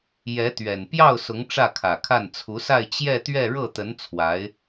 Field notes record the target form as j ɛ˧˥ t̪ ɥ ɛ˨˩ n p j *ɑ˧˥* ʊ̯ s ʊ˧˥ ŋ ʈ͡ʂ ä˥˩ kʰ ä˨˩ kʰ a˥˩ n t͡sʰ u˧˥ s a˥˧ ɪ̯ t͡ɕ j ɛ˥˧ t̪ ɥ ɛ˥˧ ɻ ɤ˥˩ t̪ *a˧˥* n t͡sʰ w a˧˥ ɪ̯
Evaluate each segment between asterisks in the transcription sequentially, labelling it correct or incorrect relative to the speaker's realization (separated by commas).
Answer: incorrect, incorrect